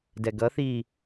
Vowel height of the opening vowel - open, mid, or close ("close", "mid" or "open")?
mid